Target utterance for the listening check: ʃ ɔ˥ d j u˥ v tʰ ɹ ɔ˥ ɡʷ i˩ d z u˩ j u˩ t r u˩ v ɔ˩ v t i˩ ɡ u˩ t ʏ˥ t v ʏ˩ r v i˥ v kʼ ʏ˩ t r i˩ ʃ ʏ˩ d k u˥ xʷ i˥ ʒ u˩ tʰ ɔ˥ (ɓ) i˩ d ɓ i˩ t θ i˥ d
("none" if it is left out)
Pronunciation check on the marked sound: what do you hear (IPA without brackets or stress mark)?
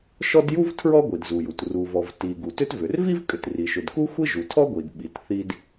ɡʷ